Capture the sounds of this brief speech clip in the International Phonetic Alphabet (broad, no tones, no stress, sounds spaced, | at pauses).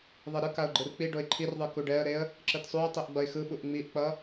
ðˤ e ɾ ɯ k a ʊ̯ ɡ͡ǃ ɯ r k͡p i ɖ o ɪ̯ ǃʰ i r ðˤ ɯ k u ɖ ɛ ə̯ ɾ e ə̯ | ǁ ɯ t sˤ u ə̯ tˤ i ʔ ɡ͡b ʌ ɪ̯ x ɯ ɓ u ʔ ŋ͡m i ʔ k͡p ʌ